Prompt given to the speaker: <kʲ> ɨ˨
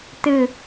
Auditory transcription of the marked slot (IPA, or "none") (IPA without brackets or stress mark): t